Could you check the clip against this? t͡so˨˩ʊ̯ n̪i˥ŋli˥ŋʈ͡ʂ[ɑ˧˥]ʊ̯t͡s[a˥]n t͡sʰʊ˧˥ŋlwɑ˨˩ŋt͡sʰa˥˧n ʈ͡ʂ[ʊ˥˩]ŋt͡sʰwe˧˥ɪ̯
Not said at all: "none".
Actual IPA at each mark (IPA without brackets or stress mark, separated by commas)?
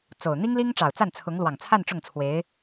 ɑ˨˩, a˥˩, ʊ˥˩